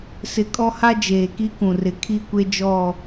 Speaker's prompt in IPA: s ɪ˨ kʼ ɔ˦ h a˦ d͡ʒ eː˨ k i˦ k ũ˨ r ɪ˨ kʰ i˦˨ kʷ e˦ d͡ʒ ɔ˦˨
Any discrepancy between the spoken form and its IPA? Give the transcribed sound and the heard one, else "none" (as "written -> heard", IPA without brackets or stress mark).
none